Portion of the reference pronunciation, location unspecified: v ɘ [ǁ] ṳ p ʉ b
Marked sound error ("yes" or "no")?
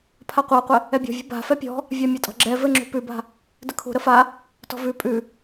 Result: yes